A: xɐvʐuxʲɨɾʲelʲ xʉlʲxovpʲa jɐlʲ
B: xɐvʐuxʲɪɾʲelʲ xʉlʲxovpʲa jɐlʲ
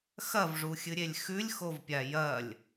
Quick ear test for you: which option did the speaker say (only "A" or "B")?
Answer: A